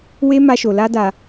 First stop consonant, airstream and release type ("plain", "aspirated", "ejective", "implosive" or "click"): plain